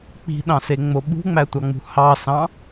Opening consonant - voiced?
no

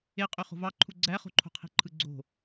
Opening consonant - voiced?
no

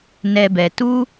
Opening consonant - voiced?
yes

